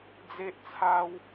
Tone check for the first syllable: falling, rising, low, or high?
high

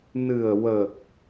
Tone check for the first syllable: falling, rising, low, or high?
low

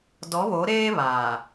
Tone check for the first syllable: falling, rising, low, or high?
rising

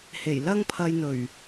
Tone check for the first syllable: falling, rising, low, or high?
low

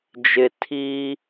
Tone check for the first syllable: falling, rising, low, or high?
low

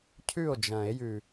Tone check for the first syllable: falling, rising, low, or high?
falling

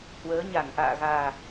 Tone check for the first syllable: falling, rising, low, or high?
rising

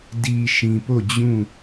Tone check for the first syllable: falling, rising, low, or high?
low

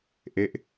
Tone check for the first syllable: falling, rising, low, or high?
falling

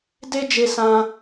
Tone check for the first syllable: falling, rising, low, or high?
high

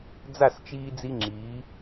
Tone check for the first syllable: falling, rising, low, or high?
falling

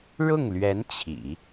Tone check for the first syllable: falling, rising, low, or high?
falling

